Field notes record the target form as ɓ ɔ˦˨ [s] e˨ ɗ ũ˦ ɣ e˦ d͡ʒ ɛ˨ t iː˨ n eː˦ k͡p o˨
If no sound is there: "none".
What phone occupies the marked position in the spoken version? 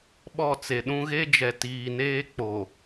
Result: t͡s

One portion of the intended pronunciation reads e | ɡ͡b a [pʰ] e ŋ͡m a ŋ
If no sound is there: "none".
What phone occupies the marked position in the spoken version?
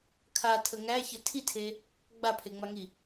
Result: pʰ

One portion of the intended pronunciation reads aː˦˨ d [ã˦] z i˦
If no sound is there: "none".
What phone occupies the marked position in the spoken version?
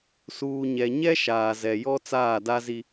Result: a˦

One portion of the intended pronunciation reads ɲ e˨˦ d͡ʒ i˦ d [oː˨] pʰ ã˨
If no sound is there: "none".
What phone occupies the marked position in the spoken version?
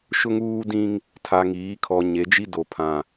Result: o˨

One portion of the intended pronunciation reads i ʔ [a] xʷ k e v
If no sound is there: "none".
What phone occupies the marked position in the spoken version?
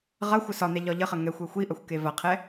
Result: ɐ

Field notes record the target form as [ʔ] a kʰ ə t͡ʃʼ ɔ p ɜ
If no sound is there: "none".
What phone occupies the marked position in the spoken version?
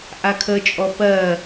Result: ʔ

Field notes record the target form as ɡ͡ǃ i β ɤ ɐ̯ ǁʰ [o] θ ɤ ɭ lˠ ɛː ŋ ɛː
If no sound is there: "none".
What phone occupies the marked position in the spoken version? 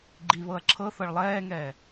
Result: ɤ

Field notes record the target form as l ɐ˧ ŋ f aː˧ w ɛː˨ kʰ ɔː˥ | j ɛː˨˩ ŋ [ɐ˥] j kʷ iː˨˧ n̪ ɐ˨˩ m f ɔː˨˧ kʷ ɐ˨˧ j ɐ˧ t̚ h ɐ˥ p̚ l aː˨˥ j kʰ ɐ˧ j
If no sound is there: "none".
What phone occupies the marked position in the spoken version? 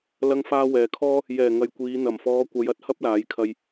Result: ɐ˨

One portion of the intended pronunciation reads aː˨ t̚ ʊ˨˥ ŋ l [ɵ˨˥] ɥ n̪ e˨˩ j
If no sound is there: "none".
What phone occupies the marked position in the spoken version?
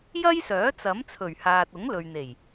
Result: ɵ˨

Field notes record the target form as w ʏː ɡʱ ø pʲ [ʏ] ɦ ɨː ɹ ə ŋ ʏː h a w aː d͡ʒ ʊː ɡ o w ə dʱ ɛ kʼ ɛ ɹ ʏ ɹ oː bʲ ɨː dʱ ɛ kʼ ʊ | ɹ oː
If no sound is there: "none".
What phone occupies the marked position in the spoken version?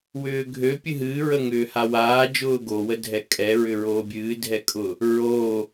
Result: ɨ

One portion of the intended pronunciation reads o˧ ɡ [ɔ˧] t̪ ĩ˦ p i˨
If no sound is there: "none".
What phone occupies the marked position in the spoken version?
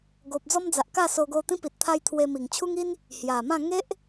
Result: o˧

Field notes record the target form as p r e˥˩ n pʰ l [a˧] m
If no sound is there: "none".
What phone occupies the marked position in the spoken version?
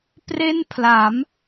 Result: a˩˦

